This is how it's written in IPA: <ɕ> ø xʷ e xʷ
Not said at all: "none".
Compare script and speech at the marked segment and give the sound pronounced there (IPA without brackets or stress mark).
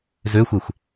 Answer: z